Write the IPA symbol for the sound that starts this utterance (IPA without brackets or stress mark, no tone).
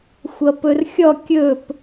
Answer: xʷ